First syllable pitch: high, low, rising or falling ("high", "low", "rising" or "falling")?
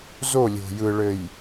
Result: falling